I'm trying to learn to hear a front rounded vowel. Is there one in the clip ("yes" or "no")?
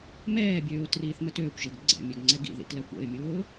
yes